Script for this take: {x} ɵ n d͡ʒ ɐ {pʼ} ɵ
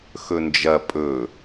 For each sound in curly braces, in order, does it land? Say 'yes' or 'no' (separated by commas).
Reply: yes, yes